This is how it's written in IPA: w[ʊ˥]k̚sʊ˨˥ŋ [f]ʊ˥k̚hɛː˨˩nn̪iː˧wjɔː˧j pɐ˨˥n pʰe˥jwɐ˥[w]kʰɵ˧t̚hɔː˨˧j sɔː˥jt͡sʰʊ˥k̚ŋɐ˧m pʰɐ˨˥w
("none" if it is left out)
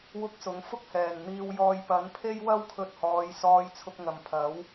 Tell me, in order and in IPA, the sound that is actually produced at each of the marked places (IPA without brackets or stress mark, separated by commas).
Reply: ʊ˥, f, w